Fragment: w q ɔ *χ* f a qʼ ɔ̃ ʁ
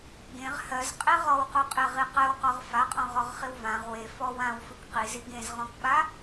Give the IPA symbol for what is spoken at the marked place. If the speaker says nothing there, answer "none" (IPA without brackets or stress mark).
ʁ